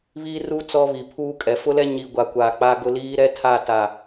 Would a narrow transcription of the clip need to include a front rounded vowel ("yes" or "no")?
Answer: no